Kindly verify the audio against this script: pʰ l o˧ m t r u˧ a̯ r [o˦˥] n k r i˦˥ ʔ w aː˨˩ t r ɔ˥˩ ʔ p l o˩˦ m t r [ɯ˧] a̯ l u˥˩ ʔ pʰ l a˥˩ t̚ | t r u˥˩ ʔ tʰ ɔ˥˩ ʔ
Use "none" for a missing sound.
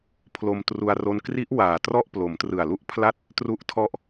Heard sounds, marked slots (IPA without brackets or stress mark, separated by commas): o˦˥, ɯ˨˩